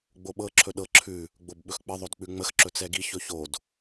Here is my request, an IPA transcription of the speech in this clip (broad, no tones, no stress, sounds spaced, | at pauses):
ɡ͡b o ɓ ɤ ǁʰ ɵ ɗ ɤ ǁʰ ʉ | ɡ͡b o b ɓ ɵ x k͡p ə ðˤ o d k͡p ʉ ŋ͡m ə x ǁ ɵ t͡s ɛ ɡ i ç ɵ ç o d